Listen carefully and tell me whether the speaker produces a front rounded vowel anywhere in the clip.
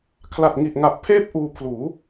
no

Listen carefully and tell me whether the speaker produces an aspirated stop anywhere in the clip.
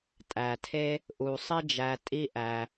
yes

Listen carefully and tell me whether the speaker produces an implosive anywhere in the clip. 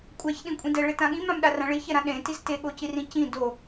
yes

